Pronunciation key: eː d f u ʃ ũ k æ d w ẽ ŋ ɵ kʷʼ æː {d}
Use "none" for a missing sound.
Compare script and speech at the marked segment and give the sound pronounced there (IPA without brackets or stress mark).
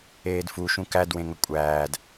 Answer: d